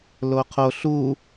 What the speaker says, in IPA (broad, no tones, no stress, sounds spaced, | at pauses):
l o qʰ o ɬ u